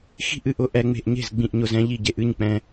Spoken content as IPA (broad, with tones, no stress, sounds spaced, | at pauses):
x i̤˥˩ ʔ ɨ˥˩ ʔ ʊ˧ ʔ ɛ˧ ŋ͡m e̤˧ ʔ ɲ e̤˥˩ z ɡ͡b ĩ˧ ʔ ɲ ʊ˧ z ɛ̃˧ ʎ i˥˩ ɟ e˧ ʔ ɨ˥˩ ɲ k͡p ɛ̃˧